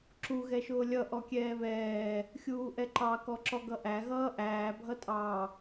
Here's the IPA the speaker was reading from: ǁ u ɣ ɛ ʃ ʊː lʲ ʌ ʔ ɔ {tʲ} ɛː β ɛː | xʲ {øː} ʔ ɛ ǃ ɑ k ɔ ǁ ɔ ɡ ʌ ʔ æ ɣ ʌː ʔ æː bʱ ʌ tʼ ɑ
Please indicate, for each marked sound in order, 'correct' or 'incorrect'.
incorrect: kʲ, incorrect: uː

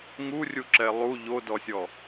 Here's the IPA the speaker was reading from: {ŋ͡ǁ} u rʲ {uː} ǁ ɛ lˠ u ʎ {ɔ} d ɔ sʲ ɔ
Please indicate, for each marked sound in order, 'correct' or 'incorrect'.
incorrect: ŋ, incorrect: u, incorrect: o

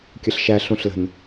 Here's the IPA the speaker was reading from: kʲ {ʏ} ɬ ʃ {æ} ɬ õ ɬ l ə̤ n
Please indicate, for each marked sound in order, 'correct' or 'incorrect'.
incorrect: ə, correct

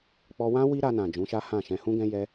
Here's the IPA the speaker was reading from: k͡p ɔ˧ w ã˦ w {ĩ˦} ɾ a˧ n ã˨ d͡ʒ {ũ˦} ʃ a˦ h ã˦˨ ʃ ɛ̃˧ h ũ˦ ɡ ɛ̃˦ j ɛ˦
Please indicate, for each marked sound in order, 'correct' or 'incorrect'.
incorrect: i˦, incorrect: ũ˨˦

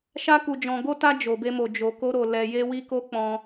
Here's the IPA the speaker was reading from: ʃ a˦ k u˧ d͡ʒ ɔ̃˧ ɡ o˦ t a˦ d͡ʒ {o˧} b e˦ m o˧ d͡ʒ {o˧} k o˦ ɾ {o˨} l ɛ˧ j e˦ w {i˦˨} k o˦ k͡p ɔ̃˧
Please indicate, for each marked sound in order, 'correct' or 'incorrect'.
correct, correct, incorrect: o˧, incorrect: i˦

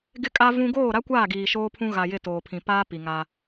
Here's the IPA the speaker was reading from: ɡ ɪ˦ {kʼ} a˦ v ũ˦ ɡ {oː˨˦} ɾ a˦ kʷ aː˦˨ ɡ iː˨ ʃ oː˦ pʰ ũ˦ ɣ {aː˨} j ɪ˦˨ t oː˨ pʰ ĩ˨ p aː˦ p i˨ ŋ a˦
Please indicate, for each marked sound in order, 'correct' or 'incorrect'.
correct, incorrect: oː˦˨, incorrect: a˨

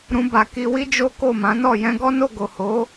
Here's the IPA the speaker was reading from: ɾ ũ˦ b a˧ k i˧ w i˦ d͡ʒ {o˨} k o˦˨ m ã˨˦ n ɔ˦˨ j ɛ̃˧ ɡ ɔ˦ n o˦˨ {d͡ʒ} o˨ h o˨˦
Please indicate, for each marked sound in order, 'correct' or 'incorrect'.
incorrect: o˦, incorrect: ɡ

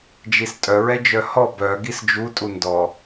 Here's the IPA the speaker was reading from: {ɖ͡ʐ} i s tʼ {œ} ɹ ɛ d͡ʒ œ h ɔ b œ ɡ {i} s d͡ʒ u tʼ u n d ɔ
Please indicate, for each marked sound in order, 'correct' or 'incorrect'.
incorrect: d͡ʒ, correct, correct

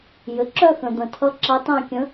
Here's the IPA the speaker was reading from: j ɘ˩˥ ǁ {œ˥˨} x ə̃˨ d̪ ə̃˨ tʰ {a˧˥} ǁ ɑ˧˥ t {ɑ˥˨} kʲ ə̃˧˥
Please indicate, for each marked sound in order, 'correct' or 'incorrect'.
correct, incorrect: ʌ˧˥, incorrect: ɑ̃˥˨

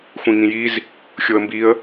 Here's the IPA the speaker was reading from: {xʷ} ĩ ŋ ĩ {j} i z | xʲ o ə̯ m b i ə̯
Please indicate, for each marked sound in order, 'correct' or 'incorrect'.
correct, correct

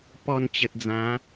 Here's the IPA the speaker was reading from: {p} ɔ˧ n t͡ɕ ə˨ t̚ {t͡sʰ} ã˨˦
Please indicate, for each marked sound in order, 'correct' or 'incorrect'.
correct, incorrect: d͡z

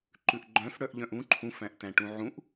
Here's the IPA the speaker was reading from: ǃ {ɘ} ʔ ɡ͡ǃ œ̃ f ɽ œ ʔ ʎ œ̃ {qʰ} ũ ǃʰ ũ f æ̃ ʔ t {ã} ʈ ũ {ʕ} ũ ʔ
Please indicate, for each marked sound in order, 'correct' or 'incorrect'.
incorrect: ʉ, incorrect: ʔ, incorrect: æ̃, correct

